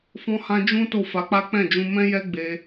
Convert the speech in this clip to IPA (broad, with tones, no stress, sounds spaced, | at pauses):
f ɔ̃˧ h ã˧ d͡ʒ ũ˦ t o˦˨ f a˨˦ k͡p a˦ k͡p ɛ̃˦˨ d͡ʒ ũ˧ m ɛ̃˦ j ɛ˦ ɡ͡b e˧